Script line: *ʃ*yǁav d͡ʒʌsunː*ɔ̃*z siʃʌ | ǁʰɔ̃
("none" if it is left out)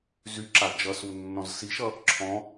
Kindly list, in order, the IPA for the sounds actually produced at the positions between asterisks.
z, ɔ̃

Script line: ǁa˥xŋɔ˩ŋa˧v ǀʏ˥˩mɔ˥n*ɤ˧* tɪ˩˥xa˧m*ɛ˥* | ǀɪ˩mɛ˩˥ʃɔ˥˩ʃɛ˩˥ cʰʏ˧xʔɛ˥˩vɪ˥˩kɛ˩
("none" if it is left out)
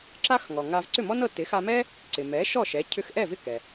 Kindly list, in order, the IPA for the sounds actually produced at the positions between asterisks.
ɤ˧, ɛ˥

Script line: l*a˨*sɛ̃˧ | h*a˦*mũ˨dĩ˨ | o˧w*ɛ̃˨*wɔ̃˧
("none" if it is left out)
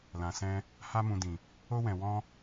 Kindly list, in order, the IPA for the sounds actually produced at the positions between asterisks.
ã˨, a˧, ɛ̃˨

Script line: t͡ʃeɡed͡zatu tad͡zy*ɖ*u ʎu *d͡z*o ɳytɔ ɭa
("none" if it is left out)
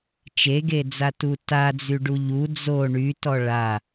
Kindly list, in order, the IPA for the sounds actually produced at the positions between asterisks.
ɖ, d͡z

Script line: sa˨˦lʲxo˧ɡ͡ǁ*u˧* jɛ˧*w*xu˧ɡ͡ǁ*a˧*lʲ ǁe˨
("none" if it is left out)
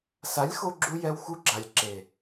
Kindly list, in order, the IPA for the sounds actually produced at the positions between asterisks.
u˧, w, a˨

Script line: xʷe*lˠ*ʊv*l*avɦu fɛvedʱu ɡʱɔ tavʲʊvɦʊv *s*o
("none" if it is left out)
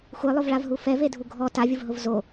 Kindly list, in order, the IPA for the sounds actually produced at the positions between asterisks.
lˠ, ɭ, z

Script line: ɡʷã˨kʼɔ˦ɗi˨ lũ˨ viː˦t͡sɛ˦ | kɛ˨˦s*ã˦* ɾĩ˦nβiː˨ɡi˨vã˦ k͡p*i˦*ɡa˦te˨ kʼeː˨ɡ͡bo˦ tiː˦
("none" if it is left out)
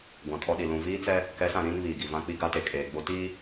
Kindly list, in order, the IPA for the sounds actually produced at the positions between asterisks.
ã˨, i˦

